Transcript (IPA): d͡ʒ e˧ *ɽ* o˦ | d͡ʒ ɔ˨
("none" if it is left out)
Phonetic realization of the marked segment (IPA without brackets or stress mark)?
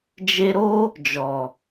ɾ